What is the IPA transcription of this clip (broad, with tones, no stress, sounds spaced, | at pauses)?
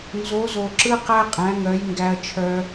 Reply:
n z o˨˦ z o˨ ǁ ɯ˦ q æ˦ qʼ æ̃˨˦ ŋ œ˨˦ j ŋ ɡ æ˧ ɐ̯ t͡ʃʰ œ˧